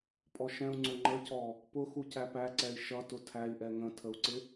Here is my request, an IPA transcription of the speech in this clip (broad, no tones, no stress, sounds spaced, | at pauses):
pʼ ɔ ʃ ɛ̃ u̯ ŋ͡ǀ ʊ ŋ͡ǃ ə c ɔ | p ʊ x u c æ p æ ǀ ɛ i̯ ʃ ʌ t ʊ tʰ æ i̯ ʔ ɛ ŋ ə̃ tʰ ə u̯ ǀ ɪ